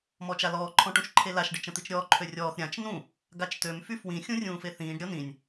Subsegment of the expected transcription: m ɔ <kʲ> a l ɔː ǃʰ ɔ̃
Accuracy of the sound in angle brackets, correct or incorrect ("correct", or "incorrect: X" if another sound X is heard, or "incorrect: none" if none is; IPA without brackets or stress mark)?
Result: incorrect: t͡ʃ